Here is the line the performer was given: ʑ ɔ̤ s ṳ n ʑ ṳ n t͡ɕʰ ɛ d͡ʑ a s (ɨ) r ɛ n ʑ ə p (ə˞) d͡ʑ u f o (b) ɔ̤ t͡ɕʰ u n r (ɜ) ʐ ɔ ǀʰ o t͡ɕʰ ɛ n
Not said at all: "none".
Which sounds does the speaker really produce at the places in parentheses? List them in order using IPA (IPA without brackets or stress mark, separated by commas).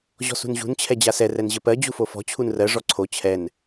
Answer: ɛ, ɜ, f, ɜ